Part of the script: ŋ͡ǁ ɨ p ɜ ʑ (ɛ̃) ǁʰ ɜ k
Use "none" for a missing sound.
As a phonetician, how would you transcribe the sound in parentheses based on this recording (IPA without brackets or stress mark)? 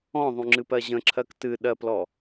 ə̃